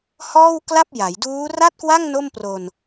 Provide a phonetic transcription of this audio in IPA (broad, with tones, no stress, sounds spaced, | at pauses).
h ɔː˥˩ w k l a˥˩ p̚ j a˩˦ j d uː˦˥ r a˥˩ t̚ k w a˥˩ ŋ n o˥˩ m p r o˧ n